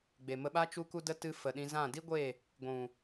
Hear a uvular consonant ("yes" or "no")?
no